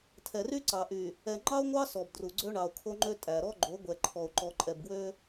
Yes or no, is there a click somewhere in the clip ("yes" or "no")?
yes